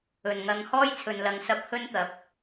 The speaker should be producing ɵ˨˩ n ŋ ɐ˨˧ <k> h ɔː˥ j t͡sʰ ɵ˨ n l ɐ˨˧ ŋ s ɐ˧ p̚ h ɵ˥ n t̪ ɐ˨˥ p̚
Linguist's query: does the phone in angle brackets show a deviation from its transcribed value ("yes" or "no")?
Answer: yes